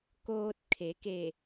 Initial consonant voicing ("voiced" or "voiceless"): voiceless